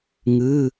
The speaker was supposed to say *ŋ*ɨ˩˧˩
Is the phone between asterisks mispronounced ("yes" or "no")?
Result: no